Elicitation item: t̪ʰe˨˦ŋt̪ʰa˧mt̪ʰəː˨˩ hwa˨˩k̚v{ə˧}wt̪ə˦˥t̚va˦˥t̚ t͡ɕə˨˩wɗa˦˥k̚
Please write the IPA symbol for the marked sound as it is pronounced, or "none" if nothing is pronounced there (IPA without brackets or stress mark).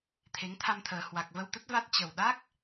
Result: ə˧